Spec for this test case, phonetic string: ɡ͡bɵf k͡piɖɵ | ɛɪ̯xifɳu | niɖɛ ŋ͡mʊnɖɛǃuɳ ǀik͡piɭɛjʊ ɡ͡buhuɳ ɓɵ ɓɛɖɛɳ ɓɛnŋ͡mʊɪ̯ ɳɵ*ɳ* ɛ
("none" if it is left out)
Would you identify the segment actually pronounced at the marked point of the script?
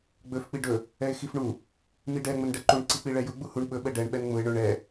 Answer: ɳ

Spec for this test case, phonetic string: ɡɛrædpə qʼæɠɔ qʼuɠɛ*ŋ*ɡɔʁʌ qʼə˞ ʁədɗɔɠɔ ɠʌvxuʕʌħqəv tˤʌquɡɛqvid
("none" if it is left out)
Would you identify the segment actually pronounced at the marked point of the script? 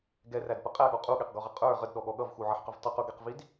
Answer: q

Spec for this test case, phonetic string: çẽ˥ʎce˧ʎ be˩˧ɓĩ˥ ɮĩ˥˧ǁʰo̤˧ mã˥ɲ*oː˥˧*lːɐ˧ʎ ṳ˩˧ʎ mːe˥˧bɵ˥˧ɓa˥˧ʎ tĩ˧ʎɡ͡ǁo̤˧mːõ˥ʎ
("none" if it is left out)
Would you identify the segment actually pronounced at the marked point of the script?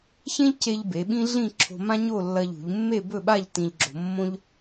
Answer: o˥˧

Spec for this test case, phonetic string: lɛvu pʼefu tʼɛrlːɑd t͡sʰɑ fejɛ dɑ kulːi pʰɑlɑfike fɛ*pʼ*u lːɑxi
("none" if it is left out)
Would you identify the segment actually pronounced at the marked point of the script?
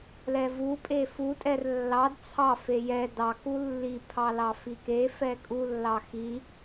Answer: kʼ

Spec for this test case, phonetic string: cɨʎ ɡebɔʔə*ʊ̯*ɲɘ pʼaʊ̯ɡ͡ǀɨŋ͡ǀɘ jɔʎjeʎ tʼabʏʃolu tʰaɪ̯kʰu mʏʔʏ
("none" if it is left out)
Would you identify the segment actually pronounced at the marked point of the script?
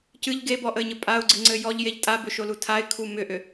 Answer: ɪ̯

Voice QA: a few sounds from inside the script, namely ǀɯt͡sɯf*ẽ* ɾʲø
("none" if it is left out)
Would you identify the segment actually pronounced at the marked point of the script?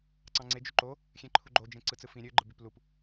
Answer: ĩ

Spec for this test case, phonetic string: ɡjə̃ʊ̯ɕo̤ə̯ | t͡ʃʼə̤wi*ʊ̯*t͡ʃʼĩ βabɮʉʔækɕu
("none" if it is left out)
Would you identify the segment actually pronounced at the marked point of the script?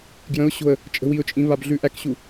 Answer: ʊ̯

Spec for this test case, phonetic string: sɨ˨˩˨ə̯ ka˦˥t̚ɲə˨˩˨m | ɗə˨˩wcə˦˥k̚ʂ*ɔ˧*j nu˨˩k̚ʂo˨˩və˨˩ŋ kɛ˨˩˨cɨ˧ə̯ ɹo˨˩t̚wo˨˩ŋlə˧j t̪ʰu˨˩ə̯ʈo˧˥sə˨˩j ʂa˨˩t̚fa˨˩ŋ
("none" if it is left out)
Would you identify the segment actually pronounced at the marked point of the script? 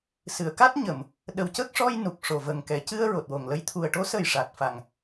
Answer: ɔ˧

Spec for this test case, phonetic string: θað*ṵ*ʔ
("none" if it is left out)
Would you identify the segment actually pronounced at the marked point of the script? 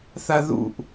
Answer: ṵ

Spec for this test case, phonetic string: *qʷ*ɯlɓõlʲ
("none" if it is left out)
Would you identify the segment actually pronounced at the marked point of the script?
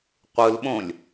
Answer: qʷ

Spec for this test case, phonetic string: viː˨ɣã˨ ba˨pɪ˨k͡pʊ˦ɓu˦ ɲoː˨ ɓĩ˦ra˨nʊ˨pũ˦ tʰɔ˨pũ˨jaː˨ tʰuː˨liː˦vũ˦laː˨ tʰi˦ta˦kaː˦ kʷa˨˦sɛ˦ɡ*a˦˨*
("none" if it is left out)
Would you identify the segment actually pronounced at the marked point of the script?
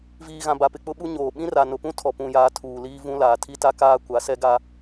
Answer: a˦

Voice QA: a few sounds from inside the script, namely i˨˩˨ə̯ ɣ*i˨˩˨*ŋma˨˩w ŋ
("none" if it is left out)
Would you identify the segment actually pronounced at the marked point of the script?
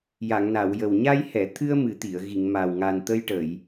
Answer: i˨˩˨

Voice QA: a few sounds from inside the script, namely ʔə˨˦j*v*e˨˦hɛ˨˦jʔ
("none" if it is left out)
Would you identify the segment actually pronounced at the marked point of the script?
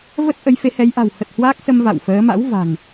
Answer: f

